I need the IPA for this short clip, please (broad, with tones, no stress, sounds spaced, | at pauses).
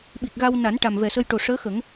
ɓ i˨˩ k̚ ɣ a˧ w n a˨˩˦ n ʈ a˨˩ m v ɛ˨˩ s ə˧ j ʈ o˨˩ ʂ əː˧˥ x ə˨˩˦ ŋ